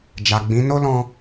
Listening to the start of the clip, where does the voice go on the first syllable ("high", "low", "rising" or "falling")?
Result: low